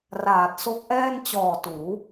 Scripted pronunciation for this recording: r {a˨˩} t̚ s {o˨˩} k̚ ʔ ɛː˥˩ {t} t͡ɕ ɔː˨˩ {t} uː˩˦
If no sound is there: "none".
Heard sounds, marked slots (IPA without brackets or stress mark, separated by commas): aː˨˩, o˦˥, n, t